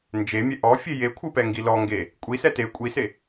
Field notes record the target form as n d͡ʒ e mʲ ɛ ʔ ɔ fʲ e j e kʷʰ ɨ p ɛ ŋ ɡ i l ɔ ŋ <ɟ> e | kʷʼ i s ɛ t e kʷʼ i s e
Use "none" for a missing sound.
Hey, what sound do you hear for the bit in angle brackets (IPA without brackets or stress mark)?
ɡ